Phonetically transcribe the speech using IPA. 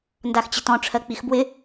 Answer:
n d a x t͡ɕ ɪ t ɔ̃ ʈ͡ʂʰ ɜ k͡p i x b w ɪ

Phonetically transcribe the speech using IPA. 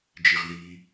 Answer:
d͡ʒ i ʁ ð i

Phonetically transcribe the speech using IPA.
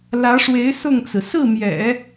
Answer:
l ä˧˥ ʂ w e˧˥ ɪ̯ s ʊ˥˩ ŋ t͡s ɹ̩˩ s ɹ̩˥˩ m j ɛ̰˨˩˦

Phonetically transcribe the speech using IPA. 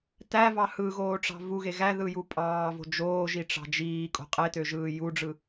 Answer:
t æ v ɑ h ɯ ɣ oː ʈ͡ʂ ɑ̤ v u ɣ e ɣ æ ð ɯ j u pʼ ɑː v o̤ d͡ʒ oː ʒ i ʈ͡ʂ ɑ̤ d͡ʒ iː kʼ o̤ qʼ e t ø ʒ ɯː j u ɖ͡ʐ ɯ

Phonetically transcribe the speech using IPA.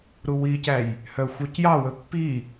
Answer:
ɾ u w i c æ j | h œ xʷ œ c j ɑ w ɵ pː i

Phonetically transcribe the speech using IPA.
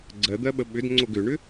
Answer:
ɡ͡ǀ ɜ d̪ ɜ ɓ ə ɓ ʏ d ŋ͡ǀ o ɡ ʏ ɳ ʏ

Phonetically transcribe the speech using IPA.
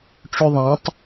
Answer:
ʈ͡ʂ ʉ ðˤ ɛ̃ tˤ

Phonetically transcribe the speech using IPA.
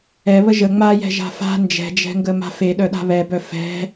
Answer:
ɛ β ə ʒ ə ŋ͡m a j ɛ̤ ʒ a̤ f a̤ n d͡ʒ ɛ̤ d͡ʒ ɛ̤ ŋ ɡ ə m a̤ f e ɗ œ ɗ a̤ β ɛ b œ f ɛ̤

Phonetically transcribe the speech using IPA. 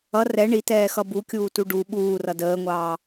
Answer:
ʌ r ɛ ɳ i t ɛː x ʌ b u kʲ uː t u ɖ u ɓ uː r ʌ d əː ŋʷ ɑː

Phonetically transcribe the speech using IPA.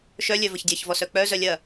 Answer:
ʃ œ lʲ œ v ə ç dʲ ɐ ç v ɔ s œ k͡p œ z œ lʲ ɐ

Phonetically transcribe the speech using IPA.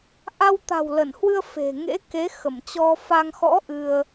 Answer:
ʔ a˧ w t̪ a̤˨˩ w l ə˧˩ n h w ɨ˧ ə̯ f e̤˨˩ ŋ ḛ˧˥ k e˨˦ x ə˧˩ m t͡ɕ ɔ˧ f a˧ ŋ x ɔ̰˧˥ ʔ ɨ˧ ə̯

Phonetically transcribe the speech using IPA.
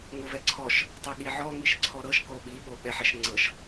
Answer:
ŋ o v ɛ ǀʰ ɔ ʃ | tˤ ɛ ɠ i ʕ ɔ ŋ i ʃ ǀʰ ɔ ɾ ɤ ʃ k o ɓ i ɓ o ɓ ɛ ħ ɛ ʃ ŋ͡ǀ ɤ ʃ

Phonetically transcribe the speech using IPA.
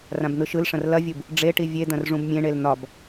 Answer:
r ã b n̪ ɯ ʃ ɯ l ʂ ɐ̃ r l ɐ vʲ u b | ɖ͡ʐ e ʈ i vʲ e d̪ ɐ̃ r ʐ ũ b mʲ ẽ ɳ e l n̪ ɒ b

